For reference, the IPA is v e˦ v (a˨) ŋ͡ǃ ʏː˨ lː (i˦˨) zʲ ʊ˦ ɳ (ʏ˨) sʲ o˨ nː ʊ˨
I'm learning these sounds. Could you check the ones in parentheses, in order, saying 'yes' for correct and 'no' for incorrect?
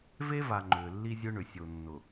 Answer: yes, no, yes

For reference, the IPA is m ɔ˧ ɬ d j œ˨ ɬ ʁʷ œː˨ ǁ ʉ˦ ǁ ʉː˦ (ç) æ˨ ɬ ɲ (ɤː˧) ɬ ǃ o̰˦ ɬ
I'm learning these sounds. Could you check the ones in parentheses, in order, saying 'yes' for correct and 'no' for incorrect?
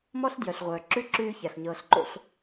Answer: yes, yes

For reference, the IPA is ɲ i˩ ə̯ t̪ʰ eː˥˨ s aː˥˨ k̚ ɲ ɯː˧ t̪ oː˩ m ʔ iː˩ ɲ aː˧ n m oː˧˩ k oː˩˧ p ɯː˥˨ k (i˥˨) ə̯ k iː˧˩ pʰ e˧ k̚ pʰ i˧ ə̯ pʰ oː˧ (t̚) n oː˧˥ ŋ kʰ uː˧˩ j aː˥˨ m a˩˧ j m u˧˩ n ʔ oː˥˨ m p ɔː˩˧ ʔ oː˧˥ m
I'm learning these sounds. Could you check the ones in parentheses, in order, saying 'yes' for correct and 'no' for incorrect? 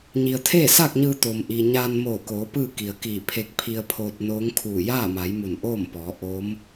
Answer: no, yes

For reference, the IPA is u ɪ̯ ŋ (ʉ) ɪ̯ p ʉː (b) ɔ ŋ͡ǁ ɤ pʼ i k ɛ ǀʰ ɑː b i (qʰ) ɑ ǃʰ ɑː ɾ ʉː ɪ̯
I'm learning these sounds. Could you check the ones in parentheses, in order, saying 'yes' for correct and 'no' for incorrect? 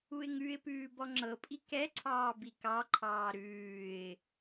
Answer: yes, yes, no

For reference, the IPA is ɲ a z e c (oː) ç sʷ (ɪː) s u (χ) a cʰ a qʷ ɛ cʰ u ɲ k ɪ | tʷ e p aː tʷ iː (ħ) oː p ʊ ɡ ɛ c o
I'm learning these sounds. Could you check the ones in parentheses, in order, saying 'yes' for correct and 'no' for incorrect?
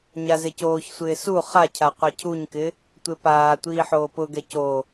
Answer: yes, yes, yes, yes

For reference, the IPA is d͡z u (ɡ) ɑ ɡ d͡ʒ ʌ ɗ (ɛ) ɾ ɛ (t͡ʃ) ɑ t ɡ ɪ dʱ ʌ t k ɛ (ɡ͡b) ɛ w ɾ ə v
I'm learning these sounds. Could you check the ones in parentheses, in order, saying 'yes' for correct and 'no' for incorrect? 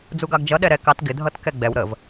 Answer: yes, yes, no, yes

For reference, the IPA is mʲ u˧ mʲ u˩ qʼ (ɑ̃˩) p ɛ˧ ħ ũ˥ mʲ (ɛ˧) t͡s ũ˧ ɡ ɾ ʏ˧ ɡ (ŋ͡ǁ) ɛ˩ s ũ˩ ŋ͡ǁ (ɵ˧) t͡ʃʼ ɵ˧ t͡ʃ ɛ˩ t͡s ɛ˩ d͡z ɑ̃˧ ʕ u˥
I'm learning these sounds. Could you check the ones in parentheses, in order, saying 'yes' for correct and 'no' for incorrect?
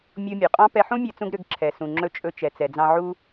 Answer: no, yes, no, yes

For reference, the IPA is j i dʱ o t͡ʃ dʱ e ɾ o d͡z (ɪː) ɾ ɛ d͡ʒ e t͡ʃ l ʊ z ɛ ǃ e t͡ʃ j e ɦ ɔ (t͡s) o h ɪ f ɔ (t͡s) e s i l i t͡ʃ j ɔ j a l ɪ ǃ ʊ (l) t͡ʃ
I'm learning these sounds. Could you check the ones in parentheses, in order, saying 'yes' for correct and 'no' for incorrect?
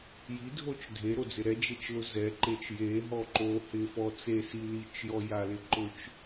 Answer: no, no, yes, no

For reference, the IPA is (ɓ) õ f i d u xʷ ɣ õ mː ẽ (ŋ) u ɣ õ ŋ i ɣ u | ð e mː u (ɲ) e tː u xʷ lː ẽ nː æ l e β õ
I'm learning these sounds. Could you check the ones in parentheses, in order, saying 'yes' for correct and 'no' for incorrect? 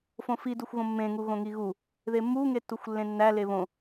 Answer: no, yes, no

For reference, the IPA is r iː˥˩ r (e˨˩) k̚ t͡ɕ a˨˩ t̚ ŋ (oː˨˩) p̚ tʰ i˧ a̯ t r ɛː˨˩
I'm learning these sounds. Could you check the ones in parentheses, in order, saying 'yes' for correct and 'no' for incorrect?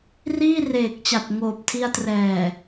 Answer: no, yes

